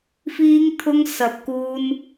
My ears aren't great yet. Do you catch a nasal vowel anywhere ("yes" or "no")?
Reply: no